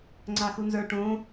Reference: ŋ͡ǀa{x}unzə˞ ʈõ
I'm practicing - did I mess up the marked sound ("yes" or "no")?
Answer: no